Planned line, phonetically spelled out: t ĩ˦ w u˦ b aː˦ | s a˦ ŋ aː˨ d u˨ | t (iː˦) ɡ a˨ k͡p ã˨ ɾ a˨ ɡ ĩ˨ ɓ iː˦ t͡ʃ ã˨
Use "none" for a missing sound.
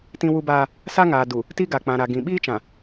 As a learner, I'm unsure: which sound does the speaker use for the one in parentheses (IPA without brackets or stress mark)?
i˦